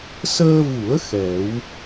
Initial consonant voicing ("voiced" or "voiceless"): voiceless